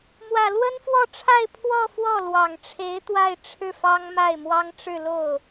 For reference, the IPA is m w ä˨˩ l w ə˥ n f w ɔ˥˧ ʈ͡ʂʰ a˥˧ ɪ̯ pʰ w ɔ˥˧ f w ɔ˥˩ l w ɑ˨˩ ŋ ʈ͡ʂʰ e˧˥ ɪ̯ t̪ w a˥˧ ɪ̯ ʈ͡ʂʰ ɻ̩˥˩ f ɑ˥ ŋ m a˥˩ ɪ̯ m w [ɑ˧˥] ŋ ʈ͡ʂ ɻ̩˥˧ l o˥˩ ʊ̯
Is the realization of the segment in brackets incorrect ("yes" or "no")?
yes